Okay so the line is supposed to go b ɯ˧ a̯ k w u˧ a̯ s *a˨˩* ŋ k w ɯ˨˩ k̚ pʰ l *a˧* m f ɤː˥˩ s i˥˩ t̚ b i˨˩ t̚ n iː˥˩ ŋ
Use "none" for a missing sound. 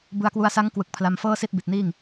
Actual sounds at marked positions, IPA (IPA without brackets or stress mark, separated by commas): a˦˥, a˧